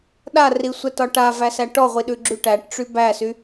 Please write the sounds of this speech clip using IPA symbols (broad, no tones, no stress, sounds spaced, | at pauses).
ɗ a r i sʷ ɛ t ɒ ʈ a v æ s æ ʈ ɔ ʁʷ i ɗ ʉ ɡ͡ǁ y ʈ æ ʈ ʈ͡ʂ y b æ s y